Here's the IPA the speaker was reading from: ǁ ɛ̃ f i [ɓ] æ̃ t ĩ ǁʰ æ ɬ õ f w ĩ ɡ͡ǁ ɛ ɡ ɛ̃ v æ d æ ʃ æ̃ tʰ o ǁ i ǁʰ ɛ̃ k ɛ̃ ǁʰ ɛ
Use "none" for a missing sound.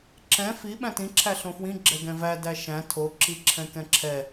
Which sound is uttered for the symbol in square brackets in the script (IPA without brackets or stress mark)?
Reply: ɓ